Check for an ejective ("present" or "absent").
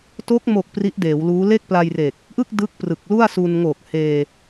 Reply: absent